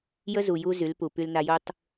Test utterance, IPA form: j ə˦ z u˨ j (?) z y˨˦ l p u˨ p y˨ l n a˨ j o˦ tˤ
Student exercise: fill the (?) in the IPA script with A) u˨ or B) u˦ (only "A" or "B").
B